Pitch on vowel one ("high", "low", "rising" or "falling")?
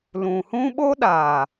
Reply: low